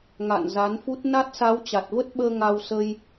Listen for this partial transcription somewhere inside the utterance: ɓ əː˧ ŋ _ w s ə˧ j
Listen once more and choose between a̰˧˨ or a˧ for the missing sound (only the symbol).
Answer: a˧